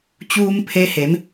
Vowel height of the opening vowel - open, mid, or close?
close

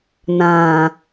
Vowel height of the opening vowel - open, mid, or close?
open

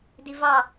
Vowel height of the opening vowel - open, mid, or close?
close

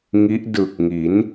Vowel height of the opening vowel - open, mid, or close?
close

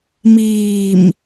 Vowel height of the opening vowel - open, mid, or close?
close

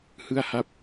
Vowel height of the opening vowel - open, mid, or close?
close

